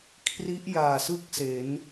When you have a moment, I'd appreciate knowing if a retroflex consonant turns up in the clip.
no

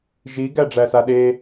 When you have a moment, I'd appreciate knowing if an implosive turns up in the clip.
yes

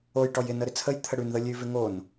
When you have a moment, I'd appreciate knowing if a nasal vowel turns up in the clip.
no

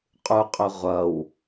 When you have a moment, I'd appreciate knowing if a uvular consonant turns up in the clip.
yes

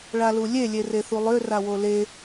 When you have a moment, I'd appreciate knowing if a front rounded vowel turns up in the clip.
yes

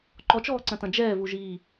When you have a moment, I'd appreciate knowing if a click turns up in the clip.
yes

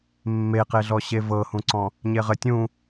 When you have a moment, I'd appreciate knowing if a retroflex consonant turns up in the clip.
no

